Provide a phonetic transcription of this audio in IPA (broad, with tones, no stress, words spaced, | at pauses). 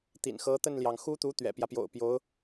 t̪ḭ˨˩nxɤ˧˥t̪ə˥˩nljɑ˩ŋ xu˥t̪u˧˥ t̪ɥɛ̰˨˩pjä˦pjo̰˨˩ʊ̯ pjo˧˥ʊ̯